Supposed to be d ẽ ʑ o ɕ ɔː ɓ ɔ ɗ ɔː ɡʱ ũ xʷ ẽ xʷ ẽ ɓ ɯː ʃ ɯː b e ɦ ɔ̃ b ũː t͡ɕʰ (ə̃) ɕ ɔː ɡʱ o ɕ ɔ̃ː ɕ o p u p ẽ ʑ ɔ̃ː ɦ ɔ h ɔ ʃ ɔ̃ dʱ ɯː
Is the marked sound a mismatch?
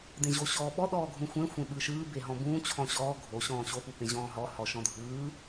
yes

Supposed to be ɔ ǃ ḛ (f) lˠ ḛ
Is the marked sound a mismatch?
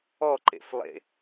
no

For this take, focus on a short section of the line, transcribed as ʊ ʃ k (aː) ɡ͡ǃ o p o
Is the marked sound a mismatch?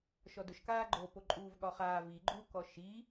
no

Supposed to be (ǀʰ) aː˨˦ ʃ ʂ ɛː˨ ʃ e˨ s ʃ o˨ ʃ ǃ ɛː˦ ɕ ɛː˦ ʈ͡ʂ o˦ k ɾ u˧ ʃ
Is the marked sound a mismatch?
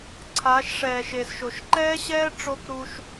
no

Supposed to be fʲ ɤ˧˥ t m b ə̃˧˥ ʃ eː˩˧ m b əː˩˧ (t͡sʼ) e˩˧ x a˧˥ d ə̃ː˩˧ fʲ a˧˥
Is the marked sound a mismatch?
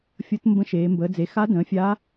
yes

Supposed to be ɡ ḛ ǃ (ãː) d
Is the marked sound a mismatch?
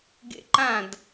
yes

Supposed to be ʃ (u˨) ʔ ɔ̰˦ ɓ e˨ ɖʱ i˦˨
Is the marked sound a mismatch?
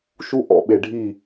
yes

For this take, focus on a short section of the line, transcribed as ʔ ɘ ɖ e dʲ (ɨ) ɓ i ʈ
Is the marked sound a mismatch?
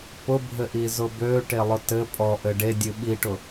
no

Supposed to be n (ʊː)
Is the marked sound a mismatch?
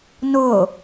no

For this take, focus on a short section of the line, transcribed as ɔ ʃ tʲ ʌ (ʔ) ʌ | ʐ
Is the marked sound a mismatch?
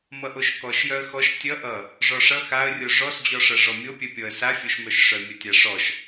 no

